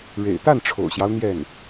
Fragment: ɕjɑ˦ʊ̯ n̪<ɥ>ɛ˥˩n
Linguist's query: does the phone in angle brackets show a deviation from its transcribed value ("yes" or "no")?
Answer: yes